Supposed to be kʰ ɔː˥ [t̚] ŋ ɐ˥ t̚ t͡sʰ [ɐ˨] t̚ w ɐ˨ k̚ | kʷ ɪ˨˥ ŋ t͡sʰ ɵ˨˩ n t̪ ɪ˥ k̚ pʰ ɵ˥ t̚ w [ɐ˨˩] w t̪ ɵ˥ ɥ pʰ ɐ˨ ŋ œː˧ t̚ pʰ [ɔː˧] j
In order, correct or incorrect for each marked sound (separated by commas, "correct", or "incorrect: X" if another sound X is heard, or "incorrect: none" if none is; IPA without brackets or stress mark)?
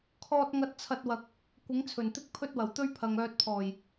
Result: correct, incorrect: ɐ˧, correct, incorrect: ɔː˨˩